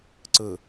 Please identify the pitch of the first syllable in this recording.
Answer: low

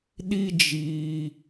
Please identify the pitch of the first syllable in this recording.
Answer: high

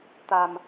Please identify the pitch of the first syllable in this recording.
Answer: low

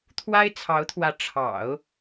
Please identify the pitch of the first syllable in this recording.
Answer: high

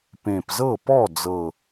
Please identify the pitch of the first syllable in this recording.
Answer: low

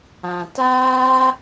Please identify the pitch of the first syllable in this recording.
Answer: low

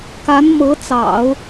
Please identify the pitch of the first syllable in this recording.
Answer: rising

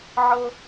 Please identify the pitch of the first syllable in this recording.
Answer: high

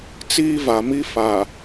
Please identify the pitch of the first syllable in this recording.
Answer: high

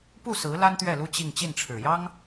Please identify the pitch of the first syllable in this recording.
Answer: falling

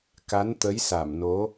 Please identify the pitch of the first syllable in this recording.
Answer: rising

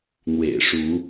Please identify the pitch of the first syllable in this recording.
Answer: low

